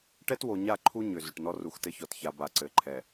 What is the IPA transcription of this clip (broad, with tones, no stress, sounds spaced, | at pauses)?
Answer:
ʈ ɛ˦ t w o˨ ɲ a˦˨ ǃʰ u˦ ɲ ʏ˨ z ʏ˨ ʈ n ɔ˦ r u˨ x t ɘ˦ ç ɔ˨ t ç a˨ b a˨ ǀ ɘ˨ ǃʰ ɛ˨